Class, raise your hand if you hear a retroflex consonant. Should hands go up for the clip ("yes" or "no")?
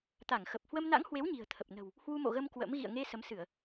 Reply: no